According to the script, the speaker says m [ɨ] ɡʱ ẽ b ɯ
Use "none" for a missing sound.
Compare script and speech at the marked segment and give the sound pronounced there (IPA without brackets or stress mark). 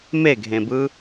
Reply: e